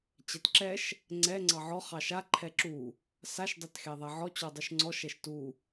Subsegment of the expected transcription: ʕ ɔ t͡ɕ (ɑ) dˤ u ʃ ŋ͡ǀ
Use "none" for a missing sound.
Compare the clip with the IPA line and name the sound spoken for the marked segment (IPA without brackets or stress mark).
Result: ɔ